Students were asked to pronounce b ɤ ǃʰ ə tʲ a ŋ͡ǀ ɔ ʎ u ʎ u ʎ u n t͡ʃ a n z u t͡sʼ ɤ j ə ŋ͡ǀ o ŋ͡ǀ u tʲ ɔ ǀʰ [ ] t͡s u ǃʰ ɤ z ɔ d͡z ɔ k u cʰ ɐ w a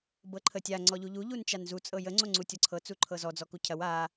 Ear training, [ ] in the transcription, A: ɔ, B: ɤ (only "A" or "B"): B